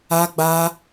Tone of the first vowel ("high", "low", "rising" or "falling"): high